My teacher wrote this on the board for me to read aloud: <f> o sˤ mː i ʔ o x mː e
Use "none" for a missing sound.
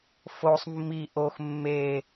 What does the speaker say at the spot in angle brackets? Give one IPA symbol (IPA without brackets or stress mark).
f